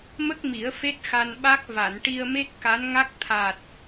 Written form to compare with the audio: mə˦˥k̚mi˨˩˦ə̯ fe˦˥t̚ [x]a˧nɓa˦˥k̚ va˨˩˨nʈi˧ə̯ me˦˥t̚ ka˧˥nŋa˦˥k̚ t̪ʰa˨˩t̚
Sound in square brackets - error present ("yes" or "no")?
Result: no